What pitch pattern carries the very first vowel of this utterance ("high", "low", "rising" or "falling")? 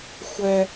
high